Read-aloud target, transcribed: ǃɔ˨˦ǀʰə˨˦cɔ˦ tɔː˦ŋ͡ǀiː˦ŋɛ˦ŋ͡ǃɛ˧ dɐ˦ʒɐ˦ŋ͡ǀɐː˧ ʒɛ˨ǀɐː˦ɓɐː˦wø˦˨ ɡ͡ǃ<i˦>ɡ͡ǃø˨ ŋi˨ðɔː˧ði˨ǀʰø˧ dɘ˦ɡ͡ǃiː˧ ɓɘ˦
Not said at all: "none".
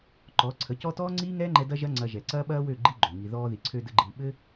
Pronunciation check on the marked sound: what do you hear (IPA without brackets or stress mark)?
i˦